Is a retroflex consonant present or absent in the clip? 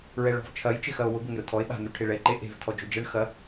present